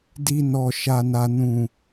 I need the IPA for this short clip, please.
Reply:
di˧nɔ˨ ʃa˨na˨ nũ˨

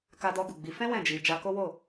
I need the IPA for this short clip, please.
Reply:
ka˧dɔ˧ɡu˨ɡ͡bi˨˦ fɛ̃˦ wɛ̃˦˨d͡ʒi˧ d͡ʒa˧ko˦wo˦˨

